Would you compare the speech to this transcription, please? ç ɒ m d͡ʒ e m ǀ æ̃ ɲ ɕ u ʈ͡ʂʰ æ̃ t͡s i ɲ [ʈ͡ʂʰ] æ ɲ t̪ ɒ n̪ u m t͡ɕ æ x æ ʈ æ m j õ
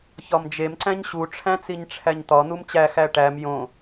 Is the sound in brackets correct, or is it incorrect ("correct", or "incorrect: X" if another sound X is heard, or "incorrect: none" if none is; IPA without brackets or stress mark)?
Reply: correct